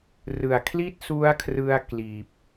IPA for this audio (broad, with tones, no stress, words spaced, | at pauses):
rɯ˨˩a̯ kʰli˥˩t̚su˦˥a̯kʰrɯ˧a̯ kliː˨˩p̚